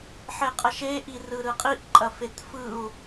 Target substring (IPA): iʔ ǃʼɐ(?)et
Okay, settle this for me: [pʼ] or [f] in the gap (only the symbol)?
f